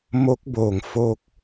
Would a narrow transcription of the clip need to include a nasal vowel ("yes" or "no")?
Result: no